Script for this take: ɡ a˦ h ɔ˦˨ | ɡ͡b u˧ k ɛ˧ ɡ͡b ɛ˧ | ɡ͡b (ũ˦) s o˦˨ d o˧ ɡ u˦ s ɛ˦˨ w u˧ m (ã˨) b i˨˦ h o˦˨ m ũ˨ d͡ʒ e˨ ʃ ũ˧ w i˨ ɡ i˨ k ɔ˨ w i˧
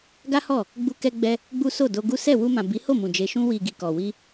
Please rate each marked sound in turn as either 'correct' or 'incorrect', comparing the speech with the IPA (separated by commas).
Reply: incorrect, correct